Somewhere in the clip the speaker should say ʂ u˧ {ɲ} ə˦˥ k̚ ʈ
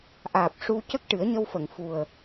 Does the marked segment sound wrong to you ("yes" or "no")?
yes